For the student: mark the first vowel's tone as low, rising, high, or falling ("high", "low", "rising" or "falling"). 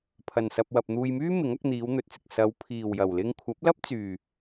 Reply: low